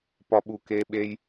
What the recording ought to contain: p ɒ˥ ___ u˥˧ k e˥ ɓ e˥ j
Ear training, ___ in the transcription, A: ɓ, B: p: A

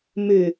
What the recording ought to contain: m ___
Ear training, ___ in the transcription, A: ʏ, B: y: A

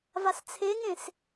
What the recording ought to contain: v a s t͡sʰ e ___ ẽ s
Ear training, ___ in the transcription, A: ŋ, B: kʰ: A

